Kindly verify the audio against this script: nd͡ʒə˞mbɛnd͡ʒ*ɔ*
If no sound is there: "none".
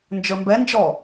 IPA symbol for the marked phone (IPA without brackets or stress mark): ɔ